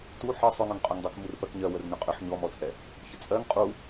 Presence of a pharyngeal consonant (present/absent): present